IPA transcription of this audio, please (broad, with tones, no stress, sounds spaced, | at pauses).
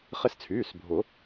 χ ɪ˧ s t͡sʰ yː˩˧˩ s bʱ ʊ˨˩˦